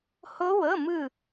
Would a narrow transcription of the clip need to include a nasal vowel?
no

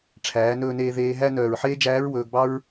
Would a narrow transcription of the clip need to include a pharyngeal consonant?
yes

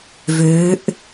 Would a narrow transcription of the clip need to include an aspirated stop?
no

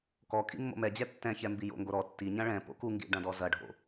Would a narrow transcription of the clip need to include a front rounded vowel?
no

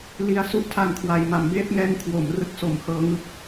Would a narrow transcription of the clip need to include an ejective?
no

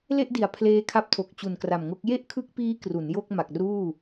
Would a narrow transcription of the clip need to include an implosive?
no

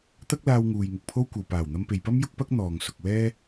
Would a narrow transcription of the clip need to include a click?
no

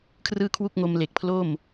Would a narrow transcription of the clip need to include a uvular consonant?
no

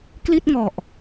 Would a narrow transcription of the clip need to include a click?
no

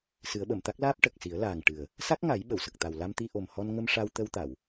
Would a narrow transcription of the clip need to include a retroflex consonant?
yes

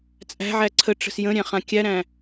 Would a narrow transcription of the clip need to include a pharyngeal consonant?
yes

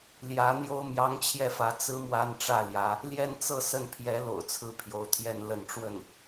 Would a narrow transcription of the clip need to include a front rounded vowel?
no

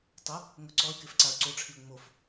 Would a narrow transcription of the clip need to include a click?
yes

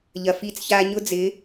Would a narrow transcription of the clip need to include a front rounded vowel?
no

